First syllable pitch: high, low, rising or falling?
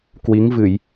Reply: rising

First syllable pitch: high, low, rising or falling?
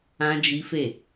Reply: high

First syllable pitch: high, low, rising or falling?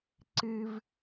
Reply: high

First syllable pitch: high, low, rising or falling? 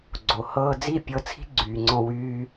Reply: low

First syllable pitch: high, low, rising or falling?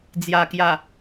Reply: low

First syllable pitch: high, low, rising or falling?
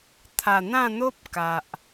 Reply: low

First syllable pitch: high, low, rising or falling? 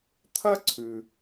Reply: high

